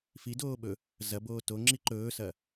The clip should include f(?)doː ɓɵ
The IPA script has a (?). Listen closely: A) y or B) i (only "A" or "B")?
B